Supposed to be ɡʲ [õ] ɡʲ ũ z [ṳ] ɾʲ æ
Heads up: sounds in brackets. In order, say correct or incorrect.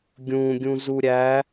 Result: incorrect: ũ, incorrect: u

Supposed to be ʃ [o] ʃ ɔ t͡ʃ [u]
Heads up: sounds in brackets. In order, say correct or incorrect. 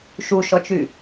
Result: incorrect: u, incorrect: y

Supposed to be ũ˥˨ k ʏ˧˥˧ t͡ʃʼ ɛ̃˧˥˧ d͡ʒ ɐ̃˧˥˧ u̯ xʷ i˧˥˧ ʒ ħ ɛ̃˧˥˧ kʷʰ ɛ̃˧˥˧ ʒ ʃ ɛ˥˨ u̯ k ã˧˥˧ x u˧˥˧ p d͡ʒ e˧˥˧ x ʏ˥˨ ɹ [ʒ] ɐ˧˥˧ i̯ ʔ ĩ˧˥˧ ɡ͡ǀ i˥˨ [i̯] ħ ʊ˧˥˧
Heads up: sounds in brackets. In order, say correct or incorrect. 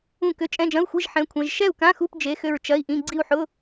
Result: incorrect: t͡ʃ, incorrect: u̯

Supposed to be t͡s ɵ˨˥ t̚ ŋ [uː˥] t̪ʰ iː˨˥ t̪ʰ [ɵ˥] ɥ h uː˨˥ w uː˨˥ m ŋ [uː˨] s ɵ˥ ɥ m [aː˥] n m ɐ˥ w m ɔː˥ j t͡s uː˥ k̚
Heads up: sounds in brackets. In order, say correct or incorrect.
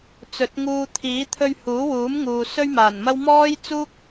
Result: incorrect: uː˧, incorrect: ɵ˧, correct, incorrect: aː˨˩

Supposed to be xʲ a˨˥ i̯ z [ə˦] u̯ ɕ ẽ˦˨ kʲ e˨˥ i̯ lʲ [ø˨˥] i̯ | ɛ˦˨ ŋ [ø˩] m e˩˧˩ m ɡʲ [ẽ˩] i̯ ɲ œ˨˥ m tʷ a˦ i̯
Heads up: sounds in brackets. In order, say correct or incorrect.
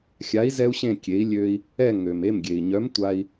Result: incorrect: ɛ˦, incorrect: ø˦, correct, incorrect: e˩

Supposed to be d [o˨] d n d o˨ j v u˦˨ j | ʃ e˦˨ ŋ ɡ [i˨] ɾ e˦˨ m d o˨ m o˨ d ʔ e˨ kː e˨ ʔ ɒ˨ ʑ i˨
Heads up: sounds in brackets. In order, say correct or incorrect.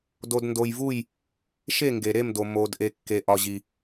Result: correct, incorrect: e˨

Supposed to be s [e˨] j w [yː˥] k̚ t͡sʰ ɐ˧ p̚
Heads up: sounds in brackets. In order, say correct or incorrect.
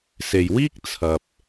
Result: correct, incorrect: iː˥

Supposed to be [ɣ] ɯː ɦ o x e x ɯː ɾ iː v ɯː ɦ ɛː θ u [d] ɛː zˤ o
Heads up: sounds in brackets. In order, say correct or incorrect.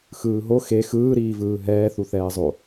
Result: incorrect: x, incorrect: θ

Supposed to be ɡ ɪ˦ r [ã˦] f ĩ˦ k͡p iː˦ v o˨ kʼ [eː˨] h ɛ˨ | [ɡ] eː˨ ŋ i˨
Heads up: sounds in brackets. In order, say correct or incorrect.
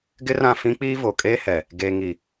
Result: incorrect: ã˦˨, incorrect: eː˦, correct

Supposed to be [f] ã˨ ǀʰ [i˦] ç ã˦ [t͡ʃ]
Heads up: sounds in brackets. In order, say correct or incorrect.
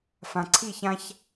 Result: correct, incorrect: i˦˨, incorrect: ç

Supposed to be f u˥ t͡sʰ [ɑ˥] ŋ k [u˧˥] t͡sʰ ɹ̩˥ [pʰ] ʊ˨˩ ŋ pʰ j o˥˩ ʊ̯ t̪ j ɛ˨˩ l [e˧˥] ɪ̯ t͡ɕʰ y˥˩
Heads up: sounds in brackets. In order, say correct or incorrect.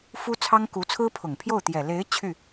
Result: correct, correct, correct, correct

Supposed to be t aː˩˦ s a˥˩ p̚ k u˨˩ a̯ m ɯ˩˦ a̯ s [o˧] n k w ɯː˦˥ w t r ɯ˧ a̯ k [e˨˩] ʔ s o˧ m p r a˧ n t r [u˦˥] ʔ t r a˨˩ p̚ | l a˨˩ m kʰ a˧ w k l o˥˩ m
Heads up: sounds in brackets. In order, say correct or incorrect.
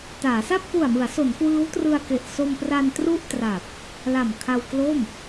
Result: incorrect: o˩˦, correct, incorrect: u˥˩

